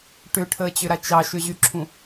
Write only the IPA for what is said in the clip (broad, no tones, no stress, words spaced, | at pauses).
ʈʏʈʰəːt͡ɕʏɾa t͡ʃɑʃʏʑyǁʰũ